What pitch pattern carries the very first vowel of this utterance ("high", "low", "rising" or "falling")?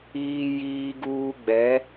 high